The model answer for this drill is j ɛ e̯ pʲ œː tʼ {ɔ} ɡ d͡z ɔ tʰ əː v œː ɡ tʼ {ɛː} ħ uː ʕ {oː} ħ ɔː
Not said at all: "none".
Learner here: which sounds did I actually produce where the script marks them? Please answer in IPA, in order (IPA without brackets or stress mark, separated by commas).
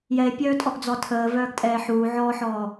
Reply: ɔ, ɛː, ɔː